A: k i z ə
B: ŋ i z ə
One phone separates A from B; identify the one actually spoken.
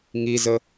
B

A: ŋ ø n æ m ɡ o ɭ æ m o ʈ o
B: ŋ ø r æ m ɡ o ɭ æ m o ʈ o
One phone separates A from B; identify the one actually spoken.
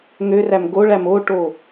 B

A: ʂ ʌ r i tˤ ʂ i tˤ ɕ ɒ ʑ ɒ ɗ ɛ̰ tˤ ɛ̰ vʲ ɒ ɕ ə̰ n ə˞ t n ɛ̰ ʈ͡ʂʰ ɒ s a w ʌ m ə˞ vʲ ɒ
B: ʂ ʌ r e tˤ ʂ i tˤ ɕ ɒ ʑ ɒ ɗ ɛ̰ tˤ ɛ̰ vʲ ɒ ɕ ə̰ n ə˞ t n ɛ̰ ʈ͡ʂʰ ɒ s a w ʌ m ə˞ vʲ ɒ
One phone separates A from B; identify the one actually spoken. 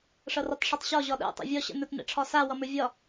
A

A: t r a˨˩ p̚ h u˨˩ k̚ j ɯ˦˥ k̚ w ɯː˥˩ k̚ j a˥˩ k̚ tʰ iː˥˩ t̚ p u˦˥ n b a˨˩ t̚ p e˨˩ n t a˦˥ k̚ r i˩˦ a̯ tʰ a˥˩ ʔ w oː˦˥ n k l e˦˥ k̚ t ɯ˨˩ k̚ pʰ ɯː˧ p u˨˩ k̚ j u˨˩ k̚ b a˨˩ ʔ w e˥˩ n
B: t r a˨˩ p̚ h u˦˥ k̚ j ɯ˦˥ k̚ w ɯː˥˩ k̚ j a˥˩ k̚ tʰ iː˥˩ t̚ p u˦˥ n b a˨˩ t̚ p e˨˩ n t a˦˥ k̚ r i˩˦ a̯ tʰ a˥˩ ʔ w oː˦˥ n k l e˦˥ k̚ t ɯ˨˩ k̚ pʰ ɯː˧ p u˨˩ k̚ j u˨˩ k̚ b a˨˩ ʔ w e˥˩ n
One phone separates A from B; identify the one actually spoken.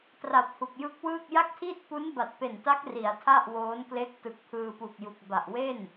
A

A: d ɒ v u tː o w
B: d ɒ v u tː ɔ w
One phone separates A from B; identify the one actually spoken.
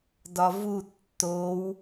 A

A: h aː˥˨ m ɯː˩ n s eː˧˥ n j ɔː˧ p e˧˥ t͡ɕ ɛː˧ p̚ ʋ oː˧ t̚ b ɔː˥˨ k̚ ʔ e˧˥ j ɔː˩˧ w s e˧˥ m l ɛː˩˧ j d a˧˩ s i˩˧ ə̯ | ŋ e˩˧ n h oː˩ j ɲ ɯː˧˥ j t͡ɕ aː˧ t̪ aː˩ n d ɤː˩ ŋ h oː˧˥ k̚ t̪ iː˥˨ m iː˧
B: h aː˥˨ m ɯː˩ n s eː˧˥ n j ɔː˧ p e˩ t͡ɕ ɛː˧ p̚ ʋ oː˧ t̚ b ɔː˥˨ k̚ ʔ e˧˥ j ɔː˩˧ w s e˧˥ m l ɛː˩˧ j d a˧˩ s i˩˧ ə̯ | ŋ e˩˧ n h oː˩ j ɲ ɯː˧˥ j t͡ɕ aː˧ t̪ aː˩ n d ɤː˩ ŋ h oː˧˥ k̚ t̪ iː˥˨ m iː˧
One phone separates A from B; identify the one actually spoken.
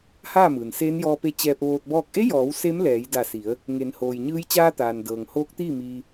A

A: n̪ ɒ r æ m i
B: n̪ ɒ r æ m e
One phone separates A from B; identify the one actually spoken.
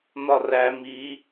A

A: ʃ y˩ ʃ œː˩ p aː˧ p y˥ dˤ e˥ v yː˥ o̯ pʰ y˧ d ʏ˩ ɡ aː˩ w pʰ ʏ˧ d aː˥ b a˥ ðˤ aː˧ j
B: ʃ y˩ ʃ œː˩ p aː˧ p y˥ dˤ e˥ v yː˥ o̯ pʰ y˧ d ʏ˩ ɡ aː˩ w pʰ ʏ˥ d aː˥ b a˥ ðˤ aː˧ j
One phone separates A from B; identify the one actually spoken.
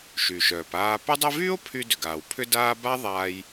B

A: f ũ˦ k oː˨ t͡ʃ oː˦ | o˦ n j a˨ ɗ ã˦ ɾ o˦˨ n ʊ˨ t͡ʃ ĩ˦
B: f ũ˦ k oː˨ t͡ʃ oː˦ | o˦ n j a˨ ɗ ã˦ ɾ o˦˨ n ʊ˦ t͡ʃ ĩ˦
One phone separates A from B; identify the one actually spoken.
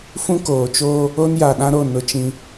B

